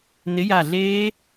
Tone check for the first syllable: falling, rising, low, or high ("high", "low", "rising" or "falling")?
rising